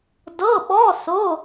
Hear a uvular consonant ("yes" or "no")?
no